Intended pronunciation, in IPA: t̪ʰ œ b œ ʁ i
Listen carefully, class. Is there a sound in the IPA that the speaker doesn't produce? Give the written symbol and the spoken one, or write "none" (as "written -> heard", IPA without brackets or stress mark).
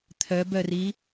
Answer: ʁ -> r